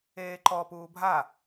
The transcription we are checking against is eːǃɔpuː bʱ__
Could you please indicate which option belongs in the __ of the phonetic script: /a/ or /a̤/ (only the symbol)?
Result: a